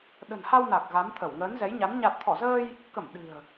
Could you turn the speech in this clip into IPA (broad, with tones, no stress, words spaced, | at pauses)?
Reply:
ɗə̤˨˩nha˧w na˨˩k̚ ɣa˨˦mt̪ʰə˧˩w ŋəː˨˦nzɛ˨˦jɲa˨˦n ɲa˨˩t̚t̪ʰɔ˧˩zəː˧j | kə˧˩m ɗɨ̤˨˩ə̯